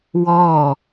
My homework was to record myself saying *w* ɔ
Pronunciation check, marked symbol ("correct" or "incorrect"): correct